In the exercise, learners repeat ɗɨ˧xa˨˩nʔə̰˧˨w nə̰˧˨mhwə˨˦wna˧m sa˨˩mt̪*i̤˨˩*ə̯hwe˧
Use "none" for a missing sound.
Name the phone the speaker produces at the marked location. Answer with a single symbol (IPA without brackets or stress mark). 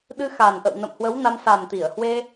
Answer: i˧˩